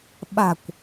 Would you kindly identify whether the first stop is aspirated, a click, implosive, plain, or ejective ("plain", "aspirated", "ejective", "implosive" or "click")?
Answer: implosive